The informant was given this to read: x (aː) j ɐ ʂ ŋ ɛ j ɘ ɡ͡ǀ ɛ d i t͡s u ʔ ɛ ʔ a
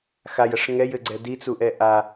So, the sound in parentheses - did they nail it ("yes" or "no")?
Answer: no